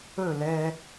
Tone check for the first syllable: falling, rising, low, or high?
falling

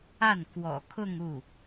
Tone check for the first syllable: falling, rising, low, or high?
falling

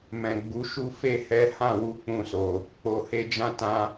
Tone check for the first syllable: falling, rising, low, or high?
low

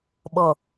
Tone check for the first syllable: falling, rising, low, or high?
low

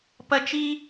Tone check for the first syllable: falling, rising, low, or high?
high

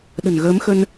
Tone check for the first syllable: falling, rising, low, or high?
low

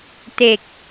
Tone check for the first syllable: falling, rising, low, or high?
low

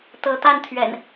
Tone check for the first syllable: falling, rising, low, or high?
rising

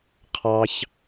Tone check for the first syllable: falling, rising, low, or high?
low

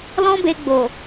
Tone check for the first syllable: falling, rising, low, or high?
high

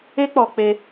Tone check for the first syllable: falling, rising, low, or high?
high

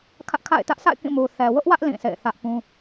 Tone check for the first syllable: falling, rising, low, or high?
high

